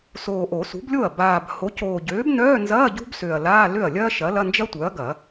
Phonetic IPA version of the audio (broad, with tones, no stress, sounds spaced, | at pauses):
s oː˨˩ ʔ o˨˩˦ s ṳ˩˥ b lʲ o˥˩ ɐ̯ b aː˨˩ b h o˩˥ c oː˨˩ ɟ øː˩˥ b n œː˧˥˧ n z ɐː˧˥˧ ɟ ṳ˥ b s ø˨˩ ɐ̯ l aː˧˥˧ l ø˥˩ ɐ̯ lʲ ɐː˥ ʃ ɐ˩˥ l ɐ˧˥˧ n d͡ʒ ɐ˥ tʷ œ˩˥ ɐ̯ ɡ ɐ˨˩˦